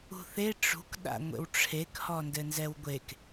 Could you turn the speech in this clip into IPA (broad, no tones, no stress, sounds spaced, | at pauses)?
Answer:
ṳ θ e ʈ͡ʂ ṳ k ɗ a̰ ŋʷ ḛ w ʈ͡ʂʰ e k h ɔ n d ɘ n z ɛ w ɡʷ e k